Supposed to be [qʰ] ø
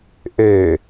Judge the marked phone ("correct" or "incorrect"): incorrect